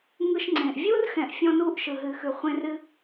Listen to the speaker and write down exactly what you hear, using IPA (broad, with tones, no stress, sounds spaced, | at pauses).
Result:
ŋ ɯ˧ ʃ ŋ͡ǀ ẽ˨ ʔ vʲ u˦ r x ɛ̃˨ ʔ fʲ ɔ̃˦ n u˦ ʔ ʃ ɯ˨ ɦ ɨ˨ x ʉ˨ χʷ ẽ˧ r ɨ˧